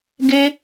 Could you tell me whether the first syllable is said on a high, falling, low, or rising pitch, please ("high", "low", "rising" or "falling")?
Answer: high